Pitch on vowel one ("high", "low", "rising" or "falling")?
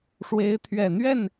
rising